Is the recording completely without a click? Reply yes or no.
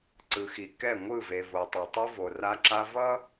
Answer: no